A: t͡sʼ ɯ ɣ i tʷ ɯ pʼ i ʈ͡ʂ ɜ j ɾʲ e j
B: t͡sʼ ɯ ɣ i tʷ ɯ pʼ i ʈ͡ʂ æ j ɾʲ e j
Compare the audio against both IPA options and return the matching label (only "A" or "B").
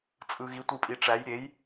B